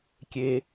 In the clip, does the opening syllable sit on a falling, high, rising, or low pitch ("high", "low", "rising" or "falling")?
high